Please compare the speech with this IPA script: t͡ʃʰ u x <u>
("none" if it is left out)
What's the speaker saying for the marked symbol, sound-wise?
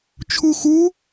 u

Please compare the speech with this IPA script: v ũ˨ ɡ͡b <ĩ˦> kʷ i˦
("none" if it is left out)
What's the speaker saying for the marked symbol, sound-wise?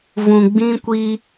ĩ˦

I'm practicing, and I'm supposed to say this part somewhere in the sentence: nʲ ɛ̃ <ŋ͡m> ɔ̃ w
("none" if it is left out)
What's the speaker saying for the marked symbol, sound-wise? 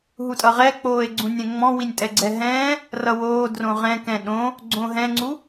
ŋ͡m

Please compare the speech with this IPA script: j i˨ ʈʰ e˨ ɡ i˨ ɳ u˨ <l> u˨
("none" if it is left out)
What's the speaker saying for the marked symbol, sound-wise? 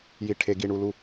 l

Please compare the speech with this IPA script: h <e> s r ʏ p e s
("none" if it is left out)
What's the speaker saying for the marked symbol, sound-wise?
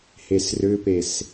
e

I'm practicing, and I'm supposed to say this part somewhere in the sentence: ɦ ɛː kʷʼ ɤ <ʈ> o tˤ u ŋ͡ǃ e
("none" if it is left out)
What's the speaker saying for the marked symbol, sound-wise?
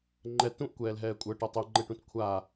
ʈ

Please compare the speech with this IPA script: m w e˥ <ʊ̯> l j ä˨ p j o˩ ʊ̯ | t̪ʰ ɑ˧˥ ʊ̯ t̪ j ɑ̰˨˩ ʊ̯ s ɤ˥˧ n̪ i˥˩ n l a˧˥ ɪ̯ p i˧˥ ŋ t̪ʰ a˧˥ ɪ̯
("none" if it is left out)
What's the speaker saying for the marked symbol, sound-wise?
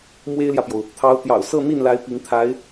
ɪ̯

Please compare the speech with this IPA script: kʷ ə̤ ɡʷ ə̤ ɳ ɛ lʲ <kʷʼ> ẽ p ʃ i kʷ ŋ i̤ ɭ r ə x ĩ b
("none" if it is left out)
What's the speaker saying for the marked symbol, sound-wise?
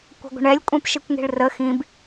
kʷʼ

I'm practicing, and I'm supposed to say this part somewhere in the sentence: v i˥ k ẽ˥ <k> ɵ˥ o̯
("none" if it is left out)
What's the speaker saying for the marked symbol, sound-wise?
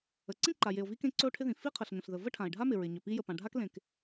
ǀ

